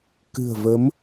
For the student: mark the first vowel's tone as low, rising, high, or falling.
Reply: low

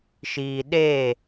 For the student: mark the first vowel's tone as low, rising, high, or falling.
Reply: low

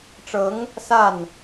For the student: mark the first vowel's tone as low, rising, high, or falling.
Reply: rising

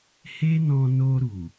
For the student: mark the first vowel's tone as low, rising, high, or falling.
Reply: high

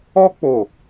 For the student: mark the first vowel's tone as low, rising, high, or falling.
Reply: high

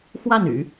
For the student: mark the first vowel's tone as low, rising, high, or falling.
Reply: falling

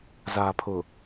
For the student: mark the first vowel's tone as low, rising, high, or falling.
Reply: low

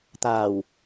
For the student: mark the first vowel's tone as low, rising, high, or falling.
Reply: low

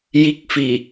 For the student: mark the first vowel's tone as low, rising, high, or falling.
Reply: rising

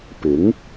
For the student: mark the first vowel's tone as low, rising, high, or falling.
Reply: rising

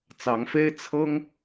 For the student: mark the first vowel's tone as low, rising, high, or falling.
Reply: rising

